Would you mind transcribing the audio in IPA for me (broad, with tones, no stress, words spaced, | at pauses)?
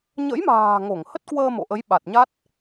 ɲə̰˧˥jma̤ː˨˩ ŋo˧˩ŋhə˦˥t̚ kwəː˧mo̰˧˨ʔə˨˦j ɓa˨˩t̚ɲa˦˥t̚